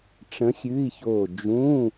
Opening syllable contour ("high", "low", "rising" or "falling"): rising